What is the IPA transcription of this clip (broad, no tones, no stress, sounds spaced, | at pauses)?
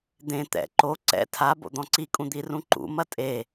d̪ ẽ t̪ ɛ̰ ǃ o ǀ ɛ̰ tʰ a b o̰ d̪ ɔ̃ ǀ i kʼ ũ d̪ i r ũ ǃ ṵ m ɐ tʼ e